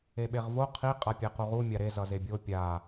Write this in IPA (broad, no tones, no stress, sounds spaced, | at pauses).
e ɓ e ʁ v o qʰ i qʼ a pʲ ɛ q u ʁ u mʲ a ɾ e z ʌ z e bʲ o pʲ a